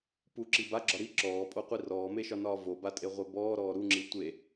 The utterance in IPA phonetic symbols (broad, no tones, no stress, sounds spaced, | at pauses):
p u ǁ i b a ɡ͡ǁ ɒ ɾ i ǁ ɔː pʼ o qʷ i r ɔː m e ʃ ɒ n ɒː v o b a tʼ e ʁʷ e b ɔː ɾ ɔː ɾ u ŋ͡ǁ i tʷ e